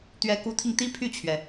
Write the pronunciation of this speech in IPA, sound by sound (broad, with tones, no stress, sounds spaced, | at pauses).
t̪ ɥ ɛ˧˥ k u˧˥ t̪ʰ i˧ ŋ t̪ i˥ pʰ y˥˩ t͡ɕʰ ɥ ɛ˩